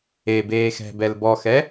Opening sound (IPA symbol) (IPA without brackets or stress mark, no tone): e